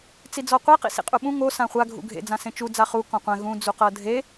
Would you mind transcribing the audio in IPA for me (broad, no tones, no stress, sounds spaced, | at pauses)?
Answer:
t͡s i d͡z ɔ qʷ e q ḭ s ḭ qʼ u ɓ ũ ŋ o s ã χʷ a ɡʱ ṵ ɡʱ ḛ d͡z ã s ẽ t͡ʃ u d͡z a χ u k ɔ̃ qʷ ɛ̃ ɣ ũ d͡z u q ɤ dʱ e